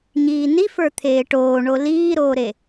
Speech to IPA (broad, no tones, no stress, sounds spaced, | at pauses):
ɲ iː n i f ə˞ t̪ʰ eː ʈ oː ɳ o l iː ɾ oː ɾ e